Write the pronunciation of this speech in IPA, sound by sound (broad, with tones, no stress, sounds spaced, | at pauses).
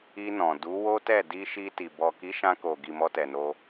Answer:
i˧ n ɔ̃˨ d u˨˦ w o˦ t ɛ˦˨ d i˧ ʃ i˧ t i˨ b ɔ˨ k i˨˦ ʃ ã˧ k o˨ ɡ i˨ m ɔ˧ t ɛ˨ n o˧